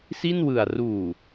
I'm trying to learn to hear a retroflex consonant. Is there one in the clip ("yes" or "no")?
no